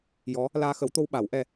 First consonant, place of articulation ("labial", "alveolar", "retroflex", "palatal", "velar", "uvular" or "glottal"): palatal